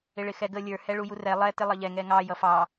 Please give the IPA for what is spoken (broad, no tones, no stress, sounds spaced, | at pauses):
ɪ ɭ ɪ x ɛ ɡ ə lʲ ə˞ h ɛ ɭ u j u r ɛ lˠ ɛ t ɪ lˠ ʌ ʎ ɛ ŋ ɛ ŋ ɑ j ʌ f ɑ